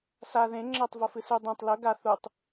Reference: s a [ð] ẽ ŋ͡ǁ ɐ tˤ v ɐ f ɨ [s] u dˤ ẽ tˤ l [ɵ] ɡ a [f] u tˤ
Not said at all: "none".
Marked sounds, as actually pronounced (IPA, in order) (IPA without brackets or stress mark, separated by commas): ð, s, ɵ, θ